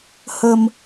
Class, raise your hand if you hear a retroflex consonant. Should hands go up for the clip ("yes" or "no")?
no